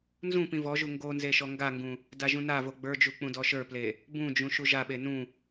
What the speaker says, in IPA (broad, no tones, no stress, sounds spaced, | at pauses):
n z ũ p ĩ v ɔ ʒ u ŋ ɡ o n z e ʃ ɔ ŋ ɡ a ŋ ɡ ũ | d a ʒ ũ n a v o ɡ͡b ə˞ d͡ʒ u k͡p ũ d ɔ ʃ ə˞ p l e | b ũ d͡ʒ ũ ʃ u ʒ a ɓ e n ũ